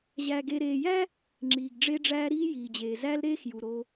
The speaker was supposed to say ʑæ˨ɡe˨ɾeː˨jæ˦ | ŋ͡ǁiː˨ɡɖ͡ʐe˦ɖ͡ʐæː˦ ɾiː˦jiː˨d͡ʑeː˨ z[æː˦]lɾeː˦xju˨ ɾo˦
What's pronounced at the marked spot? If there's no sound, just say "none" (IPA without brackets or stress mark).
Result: æ˦